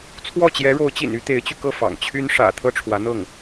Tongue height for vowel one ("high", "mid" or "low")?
mid